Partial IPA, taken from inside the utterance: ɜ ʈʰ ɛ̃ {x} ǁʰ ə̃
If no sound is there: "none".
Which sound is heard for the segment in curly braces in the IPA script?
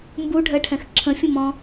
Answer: x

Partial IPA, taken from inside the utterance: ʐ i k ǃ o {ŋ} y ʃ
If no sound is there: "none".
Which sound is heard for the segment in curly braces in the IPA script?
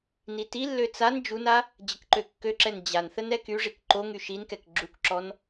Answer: ŋ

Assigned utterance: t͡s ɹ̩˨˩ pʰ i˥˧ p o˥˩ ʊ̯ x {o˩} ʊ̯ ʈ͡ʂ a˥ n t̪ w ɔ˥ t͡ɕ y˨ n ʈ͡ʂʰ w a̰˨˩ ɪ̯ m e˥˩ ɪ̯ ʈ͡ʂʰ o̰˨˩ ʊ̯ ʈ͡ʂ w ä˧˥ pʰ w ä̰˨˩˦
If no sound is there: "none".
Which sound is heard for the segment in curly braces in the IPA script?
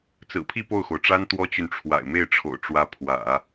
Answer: o˩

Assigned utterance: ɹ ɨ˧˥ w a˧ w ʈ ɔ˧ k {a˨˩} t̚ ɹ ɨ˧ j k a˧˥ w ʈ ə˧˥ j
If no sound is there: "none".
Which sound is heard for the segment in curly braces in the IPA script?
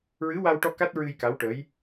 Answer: a˦˥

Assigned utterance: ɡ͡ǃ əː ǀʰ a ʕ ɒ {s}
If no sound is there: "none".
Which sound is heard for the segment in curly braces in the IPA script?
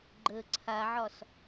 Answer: s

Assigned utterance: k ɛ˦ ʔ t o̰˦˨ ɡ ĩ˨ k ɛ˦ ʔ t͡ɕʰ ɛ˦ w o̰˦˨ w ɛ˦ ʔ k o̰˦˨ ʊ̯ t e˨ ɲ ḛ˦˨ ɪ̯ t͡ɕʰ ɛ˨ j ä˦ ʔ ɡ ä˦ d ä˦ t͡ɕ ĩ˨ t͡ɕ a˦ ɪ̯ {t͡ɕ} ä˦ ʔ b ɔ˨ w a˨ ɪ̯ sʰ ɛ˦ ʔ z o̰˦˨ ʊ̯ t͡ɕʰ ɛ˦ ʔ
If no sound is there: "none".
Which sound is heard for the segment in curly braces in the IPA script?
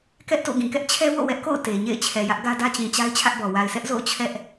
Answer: t͡ɕʰ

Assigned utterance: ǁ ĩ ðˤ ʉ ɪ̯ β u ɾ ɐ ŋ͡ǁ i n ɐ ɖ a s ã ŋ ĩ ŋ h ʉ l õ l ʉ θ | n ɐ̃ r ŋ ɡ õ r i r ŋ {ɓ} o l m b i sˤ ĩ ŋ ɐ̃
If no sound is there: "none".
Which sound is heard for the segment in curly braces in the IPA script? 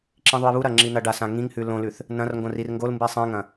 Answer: ɡ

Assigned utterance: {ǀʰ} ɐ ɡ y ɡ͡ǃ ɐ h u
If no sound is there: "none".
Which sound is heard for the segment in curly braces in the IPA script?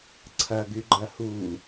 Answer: ǀʰ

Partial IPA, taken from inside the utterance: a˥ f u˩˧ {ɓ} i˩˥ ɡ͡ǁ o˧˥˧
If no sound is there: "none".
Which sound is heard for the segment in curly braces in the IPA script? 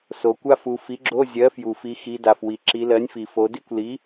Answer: f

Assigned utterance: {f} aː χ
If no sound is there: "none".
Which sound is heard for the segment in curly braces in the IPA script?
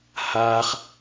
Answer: h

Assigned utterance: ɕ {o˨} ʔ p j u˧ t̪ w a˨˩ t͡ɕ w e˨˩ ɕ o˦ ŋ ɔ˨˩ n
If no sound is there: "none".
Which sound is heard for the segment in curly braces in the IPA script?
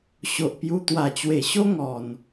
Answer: o˨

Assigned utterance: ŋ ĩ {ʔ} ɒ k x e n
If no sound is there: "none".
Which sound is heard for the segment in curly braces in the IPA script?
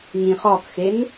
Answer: χ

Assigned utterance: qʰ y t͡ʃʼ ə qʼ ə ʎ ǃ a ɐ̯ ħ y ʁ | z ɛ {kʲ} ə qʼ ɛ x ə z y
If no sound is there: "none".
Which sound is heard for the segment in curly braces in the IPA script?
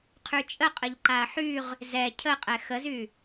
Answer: cʰ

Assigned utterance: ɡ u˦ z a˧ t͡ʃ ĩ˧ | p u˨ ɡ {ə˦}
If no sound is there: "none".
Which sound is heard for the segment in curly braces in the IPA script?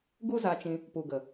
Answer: ə˨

